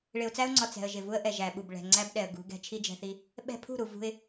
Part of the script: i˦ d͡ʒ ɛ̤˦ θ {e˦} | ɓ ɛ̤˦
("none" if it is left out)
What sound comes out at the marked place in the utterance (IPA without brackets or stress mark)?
i˦